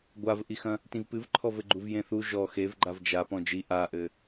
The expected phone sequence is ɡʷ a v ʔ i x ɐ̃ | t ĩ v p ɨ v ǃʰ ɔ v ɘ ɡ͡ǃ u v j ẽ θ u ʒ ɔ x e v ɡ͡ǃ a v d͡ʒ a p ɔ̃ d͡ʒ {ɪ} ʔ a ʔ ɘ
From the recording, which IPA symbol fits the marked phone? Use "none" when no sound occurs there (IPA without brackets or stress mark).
i